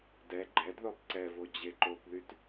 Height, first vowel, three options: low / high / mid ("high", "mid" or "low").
mid